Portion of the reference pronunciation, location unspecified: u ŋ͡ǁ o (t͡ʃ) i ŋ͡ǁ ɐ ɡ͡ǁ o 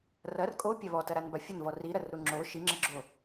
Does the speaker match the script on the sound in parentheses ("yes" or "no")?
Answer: no